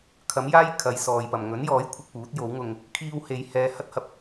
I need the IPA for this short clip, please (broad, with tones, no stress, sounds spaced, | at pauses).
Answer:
kʰ ɐ˨˥ m j aː˥ j kʰ ɐ˨˧ j s ɔː˨ j p ɐ˨ m ŋ ɵ˨˥ n j ɔː˨˥ j kʷʰ ɪ˧ k̚ p uː˨˥ t̚ j o˨˥ w ŋ ʊ˧ ŋ | kʰ iː˧ w h e˨˧ j h ɛː˧ h ɐ˥ t̚ h ɐ˨ p̚